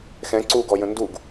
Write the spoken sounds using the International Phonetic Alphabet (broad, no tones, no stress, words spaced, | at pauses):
xɛ̃ ǀuɡɔjə̃ nduɡ